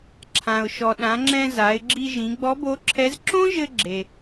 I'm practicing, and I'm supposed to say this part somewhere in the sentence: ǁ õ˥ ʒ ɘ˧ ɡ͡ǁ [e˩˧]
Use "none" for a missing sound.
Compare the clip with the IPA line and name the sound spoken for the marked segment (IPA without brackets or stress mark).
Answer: e˩